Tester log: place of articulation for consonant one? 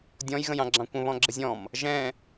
alveolar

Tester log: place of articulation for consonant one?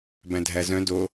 labial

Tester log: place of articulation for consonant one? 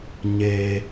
palatal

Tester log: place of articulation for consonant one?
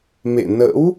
labial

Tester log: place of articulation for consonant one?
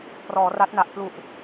labial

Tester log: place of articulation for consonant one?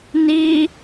alveolar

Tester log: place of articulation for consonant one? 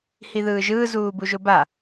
glottal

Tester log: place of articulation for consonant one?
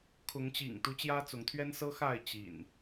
velar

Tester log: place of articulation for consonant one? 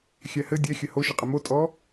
velar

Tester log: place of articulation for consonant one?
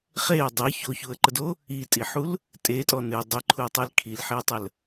uvular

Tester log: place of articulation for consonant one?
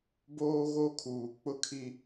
labial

